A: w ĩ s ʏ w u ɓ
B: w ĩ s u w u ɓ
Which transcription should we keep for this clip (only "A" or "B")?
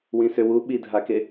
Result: A